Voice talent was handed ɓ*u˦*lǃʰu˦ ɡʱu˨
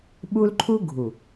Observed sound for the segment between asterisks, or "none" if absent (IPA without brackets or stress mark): u˦